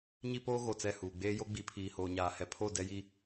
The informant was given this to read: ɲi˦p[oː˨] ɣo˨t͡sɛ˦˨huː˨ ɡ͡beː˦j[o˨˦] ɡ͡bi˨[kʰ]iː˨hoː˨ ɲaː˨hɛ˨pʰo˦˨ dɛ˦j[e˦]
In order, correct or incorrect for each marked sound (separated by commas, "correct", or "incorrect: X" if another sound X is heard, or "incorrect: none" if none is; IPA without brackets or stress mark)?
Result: incorrect: oː˦, incorrect: o˦, incorrect: pʰ, incorrect: i˦